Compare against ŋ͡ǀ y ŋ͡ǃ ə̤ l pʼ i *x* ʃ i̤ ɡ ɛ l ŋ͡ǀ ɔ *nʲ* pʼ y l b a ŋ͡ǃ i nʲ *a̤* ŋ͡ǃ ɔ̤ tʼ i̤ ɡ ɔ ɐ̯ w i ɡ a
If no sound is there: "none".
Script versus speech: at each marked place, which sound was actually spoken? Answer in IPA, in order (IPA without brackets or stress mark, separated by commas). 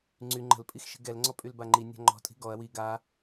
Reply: x, none, a̤